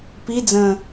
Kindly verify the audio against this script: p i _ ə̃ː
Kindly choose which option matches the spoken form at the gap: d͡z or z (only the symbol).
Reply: d͡z